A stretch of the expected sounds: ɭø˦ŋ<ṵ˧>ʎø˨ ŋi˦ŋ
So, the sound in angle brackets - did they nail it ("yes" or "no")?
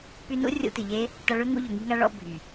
yes